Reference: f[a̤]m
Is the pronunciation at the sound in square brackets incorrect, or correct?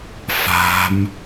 correct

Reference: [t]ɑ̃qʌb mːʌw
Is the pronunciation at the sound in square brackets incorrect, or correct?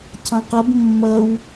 incorrect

